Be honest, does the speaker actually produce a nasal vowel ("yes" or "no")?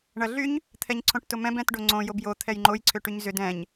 yes